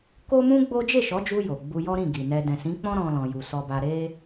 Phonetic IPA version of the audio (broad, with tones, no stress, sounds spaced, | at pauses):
k o˦ m ũ˦ ɡ͡b o˦ d͡ʒ e˦˨ ʃ ɔ˨˦ d͡ʒ u˧ j o˨ ɡ͡b u˧ j ɔ˦ ɾ ĩ˦˨ ɡ i˨ n ɛ˧ d ɛ̃˨ s ĩ˨˦ k͡p ɔ̃˦ ɾ ɔ̃˦ l ɔ̃˧ j u˨ s ɔ˧ b a˧ ɾ e˦